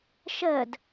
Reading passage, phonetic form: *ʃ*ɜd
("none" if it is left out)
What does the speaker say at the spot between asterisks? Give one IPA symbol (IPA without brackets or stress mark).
ʃ